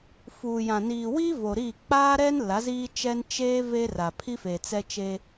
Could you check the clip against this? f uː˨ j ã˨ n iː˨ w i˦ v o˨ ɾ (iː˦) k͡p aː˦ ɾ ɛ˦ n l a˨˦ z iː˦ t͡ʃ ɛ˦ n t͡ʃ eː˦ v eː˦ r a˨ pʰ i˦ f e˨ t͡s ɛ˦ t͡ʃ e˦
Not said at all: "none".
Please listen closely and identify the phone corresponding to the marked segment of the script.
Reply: iː˦˨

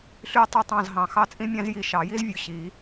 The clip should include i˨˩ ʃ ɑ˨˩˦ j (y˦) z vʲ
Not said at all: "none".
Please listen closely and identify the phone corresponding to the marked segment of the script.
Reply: i˦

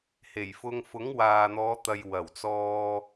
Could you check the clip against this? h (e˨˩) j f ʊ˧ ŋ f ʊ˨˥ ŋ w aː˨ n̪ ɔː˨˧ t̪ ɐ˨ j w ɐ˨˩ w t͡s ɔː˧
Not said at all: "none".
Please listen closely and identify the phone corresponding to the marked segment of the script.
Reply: e˨˩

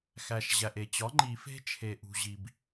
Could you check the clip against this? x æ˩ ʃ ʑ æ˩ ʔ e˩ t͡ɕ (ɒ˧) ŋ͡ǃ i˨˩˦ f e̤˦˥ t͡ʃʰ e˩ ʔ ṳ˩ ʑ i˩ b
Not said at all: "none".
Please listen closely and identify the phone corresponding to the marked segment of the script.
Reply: ɒ˩˥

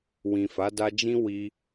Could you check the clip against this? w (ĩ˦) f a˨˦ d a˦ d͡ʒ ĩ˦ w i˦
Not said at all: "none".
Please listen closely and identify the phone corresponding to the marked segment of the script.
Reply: ĩ˨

